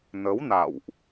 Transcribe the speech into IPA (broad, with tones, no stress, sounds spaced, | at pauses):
n ə˨˦ w n a̰˧˨ w ʔ